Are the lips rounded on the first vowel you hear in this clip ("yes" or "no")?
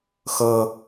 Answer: no